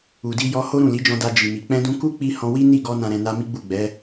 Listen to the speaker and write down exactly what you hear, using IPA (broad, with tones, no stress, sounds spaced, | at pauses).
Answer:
u˨ d i˧ j ɔ˧ h o˦ ɾ ũ˦˨ l i˨˦ d͡ʒ ɔ̃˧ d a˧ d͡ʒ i˨ m i˨ k͡p ɛ̃˧ d ũ˧ k u˦ k͡p i˧ h ɔ̃˧ w i˦ n i˦˨ ɡ ɔ˧ n ã˨ ɾ ɛ̃˨ n a˧ m i˦ ɡ͡b u˦˨ ɡ͡b ɛ˨˦